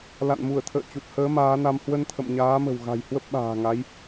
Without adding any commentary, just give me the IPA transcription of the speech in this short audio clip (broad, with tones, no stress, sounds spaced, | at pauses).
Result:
l a̰˧˨ n m u˧˩ ə̯ t̪ʰ ə̰ː˧˨ t͡ɕ u˨˩ t̚ h əː˨˦ m aː˨˦ n a˧ m h w ə˧ n t̪ʰ ə̰˧˨ m ɲ aː˨˦ m ə̤˨˩ w ɣ a̤˨˩ j h w ə˦˥ p̚ ɓ a̤ː˨˩ ŋ a˨˦ j